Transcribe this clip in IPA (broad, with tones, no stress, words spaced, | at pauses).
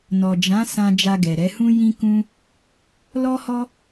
nɔ˨d͡ʒã˨˦ sã˧ d͡ʒa˧ɡɛ˨ɾɛ˨˦hũ˦ jĩ˦kũ˦ | lɔ˦hɔ˦